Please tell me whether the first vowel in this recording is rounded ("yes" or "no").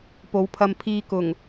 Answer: yes